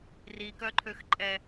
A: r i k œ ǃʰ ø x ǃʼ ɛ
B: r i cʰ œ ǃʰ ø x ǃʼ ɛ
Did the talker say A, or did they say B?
A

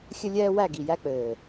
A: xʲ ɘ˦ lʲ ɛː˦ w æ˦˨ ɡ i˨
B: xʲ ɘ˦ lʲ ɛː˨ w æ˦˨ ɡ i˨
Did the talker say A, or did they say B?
A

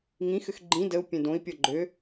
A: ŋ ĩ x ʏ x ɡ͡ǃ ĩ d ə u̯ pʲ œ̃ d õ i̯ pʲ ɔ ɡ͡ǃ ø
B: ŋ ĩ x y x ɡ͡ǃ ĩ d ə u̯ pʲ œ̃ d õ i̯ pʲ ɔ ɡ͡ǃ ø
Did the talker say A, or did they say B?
A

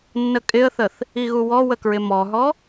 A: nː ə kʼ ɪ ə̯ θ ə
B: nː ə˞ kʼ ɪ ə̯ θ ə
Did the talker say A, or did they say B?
A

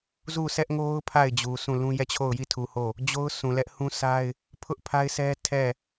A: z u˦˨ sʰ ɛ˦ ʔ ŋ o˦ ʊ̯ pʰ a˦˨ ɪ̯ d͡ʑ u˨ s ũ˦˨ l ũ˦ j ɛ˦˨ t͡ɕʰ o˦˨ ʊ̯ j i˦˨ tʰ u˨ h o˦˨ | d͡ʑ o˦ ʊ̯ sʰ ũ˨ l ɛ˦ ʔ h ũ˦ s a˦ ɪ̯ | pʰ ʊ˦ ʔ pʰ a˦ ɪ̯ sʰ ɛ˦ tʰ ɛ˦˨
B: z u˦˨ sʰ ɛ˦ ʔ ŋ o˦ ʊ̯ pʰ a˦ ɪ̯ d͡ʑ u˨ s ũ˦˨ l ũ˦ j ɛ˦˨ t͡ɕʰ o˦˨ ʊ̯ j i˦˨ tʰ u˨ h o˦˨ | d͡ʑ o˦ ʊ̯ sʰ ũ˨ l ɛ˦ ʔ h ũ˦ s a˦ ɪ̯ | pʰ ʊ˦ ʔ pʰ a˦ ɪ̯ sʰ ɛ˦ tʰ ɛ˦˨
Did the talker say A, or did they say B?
A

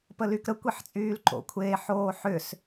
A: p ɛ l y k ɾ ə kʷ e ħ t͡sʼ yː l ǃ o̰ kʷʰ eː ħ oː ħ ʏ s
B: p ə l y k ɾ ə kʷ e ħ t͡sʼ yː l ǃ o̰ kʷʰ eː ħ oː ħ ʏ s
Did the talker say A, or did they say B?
B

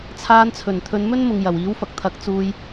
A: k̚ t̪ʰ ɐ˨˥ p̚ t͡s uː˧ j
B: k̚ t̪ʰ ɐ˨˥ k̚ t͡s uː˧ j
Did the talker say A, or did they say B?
B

